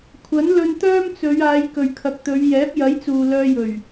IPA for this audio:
kʷʰ ɐ˨˥ n l ɵ˧ n t̪ œː˥ m t͡s ɵ˨˧ ɥ aː˨˧ j k ɵ˨ ɥ kʰ ɐ˨ k̚ t̪ ɵ˨˧ ɥ j ɛː˨˥ p̚ j ɐ˨˥ j t͡s uː˨ l œː˧ j ɵ˨˩ ɥ

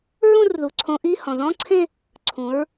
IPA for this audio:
ɹ ũ˥˧ r ð u˩˧ ǀʰ õ˨˥ ʔ i˧˥˧ h ɔ̃˩ ð ɔ̃˧˥˧ ǀʰ ẽ˥˧ | ǀʰ ũ˩˧ ɹ

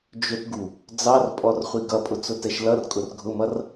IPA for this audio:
d͡ʒ ʊ t ɡ u | d͡z ɑ r pʼ ɔ r χʷ i ɡ ʌ pʼ ʊ t͡s ʊ t ɛ ʃ l ʌ r kʼ ʊ r ɡʱ ʊ m ʌ r

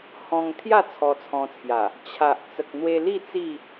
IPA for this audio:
h ɔ̃˧ ŋ t̪ʰ j a˥˧ t͡sʰ ɔ˧ t͡sʰ ɔ̃˧ t͡sʰ j a˨˩ | t͡ɕʰ a˨ ʔ t͡s ə˨ k̚ n̪ w e˧ l i˥˧ t͡s i˥˧

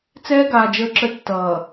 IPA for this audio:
t͡s ɛː˦ ɡ aː˨ d͡ʒ əː˦ ǁ ə˦ tː ʌː˨

